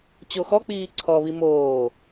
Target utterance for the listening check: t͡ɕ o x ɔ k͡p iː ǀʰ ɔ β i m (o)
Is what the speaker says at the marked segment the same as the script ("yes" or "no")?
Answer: no